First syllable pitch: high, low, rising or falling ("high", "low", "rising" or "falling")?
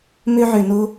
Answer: high